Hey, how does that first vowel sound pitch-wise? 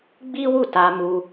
high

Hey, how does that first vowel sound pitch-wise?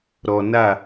low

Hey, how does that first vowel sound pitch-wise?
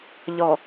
low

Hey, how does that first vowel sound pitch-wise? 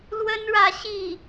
high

